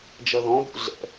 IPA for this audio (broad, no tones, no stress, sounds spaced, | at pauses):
d͡ʒ ɐ ð ɔ̃ b ṵ ɮ ɛ̰